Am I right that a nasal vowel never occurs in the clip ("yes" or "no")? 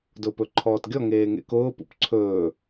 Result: yes